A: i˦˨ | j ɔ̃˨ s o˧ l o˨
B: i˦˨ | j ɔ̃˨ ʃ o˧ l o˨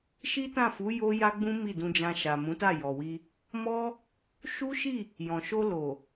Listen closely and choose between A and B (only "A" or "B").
B